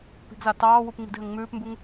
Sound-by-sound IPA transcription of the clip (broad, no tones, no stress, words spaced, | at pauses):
pi̤ɡza tɑːwup ŋ͡mi̤dɦɘŋŋ͡mʉːpmbuŋ